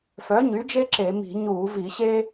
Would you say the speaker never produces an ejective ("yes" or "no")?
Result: yes